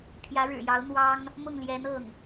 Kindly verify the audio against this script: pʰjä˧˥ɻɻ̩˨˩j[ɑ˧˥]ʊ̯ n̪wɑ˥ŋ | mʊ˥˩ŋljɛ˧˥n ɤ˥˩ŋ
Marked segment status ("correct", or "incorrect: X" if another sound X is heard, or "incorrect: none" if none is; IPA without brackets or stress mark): correct